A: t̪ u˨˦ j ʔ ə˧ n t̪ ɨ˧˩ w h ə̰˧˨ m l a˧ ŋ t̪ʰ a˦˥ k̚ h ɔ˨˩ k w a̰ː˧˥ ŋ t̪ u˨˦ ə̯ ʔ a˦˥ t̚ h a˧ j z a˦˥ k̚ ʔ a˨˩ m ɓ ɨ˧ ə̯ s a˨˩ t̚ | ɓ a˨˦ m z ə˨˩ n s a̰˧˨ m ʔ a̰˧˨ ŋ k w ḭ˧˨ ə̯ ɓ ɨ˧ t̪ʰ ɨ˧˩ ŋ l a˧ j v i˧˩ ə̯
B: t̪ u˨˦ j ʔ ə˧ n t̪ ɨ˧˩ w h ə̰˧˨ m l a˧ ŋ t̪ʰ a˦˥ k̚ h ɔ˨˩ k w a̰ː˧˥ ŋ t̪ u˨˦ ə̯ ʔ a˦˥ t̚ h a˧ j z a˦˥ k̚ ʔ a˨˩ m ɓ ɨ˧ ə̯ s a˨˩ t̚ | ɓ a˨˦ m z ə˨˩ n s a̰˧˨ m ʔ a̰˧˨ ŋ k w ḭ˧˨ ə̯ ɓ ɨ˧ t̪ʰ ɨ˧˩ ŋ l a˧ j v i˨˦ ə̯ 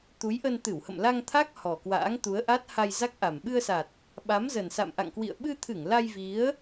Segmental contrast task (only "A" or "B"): B